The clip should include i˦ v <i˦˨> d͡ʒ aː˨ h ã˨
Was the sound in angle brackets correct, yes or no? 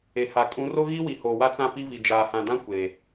no